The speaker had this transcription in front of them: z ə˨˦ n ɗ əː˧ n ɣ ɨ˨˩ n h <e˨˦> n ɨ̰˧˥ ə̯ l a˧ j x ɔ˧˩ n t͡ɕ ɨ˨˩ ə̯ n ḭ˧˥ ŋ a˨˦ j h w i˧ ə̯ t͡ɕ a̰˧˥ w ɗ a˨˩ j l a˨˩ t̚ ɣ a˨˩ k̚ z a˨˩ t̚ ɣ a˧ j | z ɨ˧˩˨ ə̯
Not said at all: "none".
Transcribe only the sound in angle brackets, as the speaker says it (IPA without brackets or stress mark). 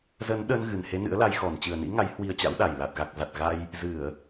e˨˦